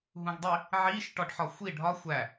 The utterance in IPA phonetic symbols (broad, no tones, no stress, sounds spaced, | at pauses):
ɦ ũ ɡ dˤ i | ʕ i ʃ ʈ ɒ ɖ ħ ɒ xʷ i ɖʱ ɒ xʷ æ